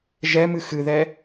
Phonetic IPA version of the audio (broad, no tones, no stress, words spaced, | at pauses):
ʒɛmɨ xɨðɛ